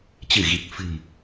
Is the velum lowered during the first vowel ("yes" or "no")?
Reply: no